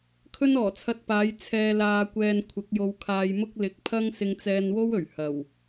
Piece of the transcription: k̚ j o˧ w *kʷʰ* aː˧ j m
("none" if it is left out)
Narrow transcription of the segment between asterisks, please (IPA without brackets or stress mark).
kʰ